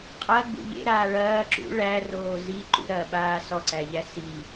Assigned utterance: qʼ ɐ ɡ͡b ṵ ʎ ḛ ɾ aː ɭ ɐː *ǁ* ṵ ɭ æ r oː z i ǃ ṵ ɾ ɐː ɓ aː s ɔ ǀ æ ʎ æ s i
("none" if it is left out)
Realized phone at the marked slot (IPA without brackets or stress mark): ǁ